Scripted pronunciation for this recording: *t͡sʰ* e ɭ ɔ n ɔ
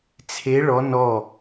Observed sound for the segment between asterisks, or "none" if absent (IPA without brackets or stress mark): t͡sʰ